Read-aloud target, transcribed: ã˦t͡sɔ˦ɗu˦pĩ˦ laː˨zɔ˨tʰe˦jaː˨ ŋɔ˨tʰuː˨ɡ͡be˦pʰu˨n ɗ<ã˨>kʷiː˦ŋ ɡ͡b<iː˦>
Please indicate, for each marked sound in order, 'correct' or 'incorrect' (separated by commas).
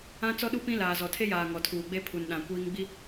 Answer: correct, incorrect